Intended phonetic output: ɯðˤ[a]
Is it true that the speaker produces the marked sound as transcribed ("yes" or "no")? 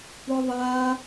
yes